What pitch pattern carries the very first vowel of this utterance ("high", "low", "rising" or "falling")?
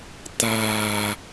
low